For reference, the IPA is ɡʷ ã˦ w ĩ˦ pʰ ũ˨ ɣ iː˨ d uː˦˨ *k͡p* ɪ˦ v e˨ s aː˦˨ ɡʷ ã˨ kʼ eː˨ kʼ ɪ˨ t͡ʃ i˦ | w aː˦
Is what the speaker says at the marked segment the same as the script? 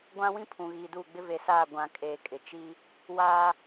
no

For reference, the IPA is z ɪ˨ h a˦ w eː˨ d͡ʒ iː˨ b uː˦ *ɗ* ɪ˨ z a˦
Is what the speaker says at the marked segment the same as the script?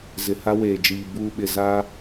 no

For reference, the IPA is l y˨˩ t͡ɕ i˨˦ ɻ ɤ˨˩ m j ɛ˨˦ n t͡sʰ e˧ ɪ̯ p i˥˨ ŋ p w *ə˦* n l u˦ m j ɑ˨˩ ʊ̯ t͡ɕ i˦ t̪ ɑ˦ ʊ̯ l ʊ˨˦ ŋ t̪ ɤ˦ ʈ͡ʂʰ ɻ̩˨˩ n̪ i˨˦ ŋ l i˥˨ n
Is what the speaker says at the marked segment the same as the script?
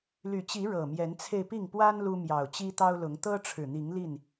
no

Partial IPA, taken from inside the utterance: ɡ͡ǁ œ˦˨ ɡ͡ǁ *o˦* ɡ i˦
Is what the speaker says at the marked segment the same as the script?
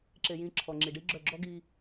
no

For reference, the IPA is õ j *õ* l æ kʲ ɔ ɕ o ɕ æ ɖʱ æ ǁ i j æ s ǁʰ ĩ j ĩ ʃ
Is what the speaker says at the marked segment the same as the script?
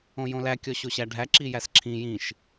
yes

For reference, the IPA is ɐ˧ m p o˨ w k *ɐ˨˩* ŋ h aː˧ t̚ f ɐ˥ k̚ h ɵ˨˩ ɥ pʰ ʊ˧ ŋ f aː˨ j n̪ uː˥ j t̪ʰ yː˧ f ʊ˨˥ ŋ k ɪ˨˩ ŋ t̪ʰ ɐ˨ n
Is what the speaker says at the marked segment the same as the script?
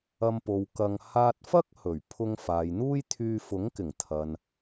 no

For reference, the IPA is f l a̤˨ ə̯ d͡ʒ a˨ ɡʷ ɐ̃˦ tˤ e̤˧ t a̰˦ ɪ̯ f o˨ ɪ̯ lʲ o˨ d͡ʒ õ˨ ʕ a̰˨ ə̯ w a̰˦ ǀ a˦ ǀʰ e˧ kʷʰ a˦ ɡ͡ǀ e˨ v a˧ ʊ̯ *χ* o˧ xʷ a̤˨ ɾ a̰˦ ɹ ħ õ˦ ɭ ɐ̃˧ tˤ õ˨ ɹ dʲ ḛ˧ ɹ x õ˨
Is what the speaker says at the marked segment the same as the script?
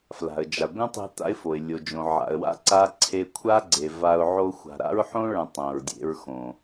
no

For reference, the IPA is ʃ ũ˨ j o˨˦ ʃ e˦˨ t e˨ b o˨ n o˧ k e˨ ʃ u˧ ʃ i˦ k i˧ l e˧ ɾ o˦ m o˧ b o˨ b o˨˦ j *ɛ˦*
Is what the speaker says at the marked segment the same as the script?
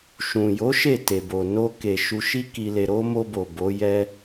yes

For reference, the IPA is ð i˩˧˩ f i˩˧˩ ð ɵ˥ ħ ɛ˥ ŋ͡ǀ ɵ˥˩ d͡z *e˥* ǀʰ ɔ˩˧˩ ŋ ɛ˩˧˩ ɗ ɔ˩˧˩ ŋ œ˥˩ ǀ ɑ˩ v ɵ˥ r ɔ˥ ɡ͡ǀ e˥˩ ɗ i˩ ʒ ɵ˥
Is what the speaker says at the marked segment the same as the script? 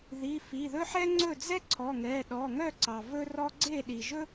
no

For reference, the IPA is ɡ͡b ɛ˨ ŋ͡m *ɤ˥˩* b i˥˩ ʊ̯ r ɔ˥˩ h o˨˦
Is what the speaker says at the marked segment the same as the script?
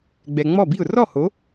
no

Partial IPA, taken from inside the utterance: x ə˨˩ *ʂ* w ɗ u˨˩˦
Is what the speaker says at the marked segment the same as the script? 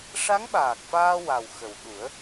no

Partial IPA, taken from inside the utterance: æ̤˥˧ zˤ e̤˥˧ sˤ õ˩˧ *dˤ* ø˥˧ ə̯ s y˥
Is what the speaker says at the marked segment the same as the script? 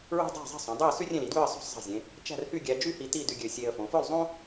yes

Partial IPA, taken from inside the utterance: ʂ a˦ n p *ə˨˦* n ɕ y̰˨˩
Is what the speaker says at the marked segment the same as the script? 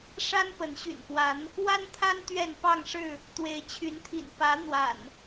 yes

